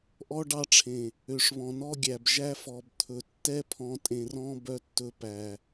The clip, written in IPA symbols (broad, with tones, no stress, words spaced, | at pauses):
ʔɔ˦ɖɑ˦ʈ͡ʂʰẽ˨ | ø˨ʂβɔ̃˨nɔ˦ ɡʲæ˨bʒæ˦fɔ˨bt̪ʰɵ˨ tːɛ˦pʰɔ̃˨ tʼẽ˨rɔ̃˦ bœ˨tːɵ˨ pæ˨